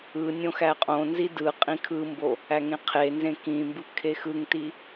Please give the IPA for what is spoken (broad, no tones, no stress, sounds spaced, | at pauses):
ɯ nʲ õ x æ qʼ õ n z i d ɯ qʼ ĩ kʰ ɯ m b o | æ ŋ ẽ qʰ e n z ẽ k ĩ m b ɯ kʰ e x ɯ ŋ t i